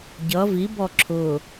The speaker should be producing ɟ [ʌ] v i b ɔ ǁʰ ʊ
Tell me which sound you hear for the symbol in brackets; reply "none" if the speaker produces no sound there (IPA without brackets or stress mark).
ʌ